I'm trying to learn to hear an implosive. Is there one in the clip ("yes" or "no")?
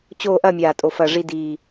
no